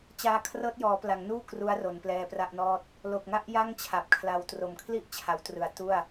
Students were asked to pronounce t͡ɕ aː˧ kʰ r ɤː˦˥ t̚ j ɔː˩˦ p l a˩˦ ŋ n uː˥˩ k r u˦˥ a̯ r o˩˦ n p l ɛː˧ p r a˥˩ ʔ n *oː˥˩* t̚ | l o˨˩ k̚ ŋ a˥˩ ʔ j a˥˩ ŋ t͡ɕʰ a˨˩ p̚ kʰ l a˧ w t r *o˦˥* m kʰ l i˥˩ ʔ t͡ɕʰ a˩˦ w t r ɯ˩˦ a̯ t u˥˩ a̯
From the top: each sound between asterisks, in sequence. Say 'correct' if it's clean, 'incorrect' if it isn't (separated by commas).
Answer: incorrect, incorrect